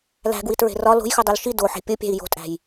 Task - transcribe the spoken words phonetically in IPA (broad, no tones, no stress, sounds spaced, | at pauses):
l æ̤ ɡ w i t ɹ e̤ r ɒ l o̤ j x u dˤ e l ʃ i d o ħ e̤ pʲ o pʲ æ̤ i̯ j o̤ tʼ æ̤ j